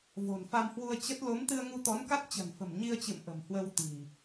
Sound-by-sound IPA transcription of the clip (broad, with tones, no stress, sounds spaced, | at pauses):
v o̤˨˩ n f a˧ m h w u˧ ə̯ t͡ɕ ə˦˥ t̚ l o˨˦ m t̪ ɨ˧ ə̯ ŋ u˧ t̪ ɔ˨˦ n k a˦˥ t̚ t͡ɕ ə̤˨˩ n f ə̤˨˩ m ɲ i˧ ə̯ t͡ɕ ɨ̰˧˨ m ʔ ə̤˨˩ m h w ə˧ w t̪ i̤˨˩